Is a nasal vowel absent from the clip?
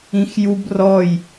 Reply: no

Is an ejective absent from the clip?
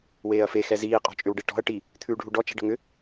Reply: no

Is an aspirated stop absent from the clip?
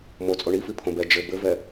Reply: no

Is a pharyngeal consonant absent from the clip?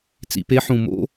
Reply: no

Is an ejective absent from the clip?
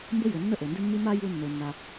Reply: yes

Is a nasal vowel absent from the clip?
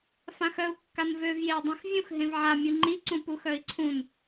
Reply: no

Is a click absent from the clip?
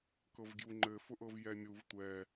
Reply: no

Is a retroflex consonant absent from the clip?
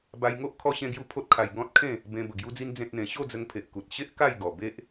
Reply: yes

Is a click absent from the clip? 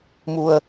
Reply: yes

